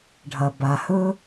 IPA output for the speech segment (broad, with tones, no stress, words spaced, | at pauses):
ɖʱɐ˩ba˩hɵ˦